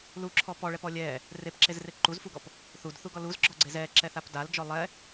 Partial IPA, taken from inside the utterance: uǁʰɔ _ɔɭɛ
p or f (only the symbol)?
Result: p